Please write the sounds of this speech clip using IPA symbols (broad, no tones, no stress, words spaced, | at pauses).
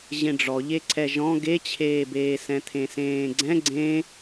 ʑẽɖ͡ʐɔʎeǀʰɛ ʒɔ̃ ɡet͡ɕʰeːbeːsɛ̃ t̪ʰẽsẽːɡ͡ǀɛ̃ ɡ͡ǀẽ